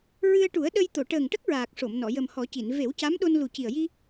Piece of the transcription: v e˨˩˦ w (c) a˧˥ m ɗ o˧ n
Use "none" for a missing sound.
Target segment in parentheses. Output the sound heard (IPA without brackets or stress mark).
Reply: c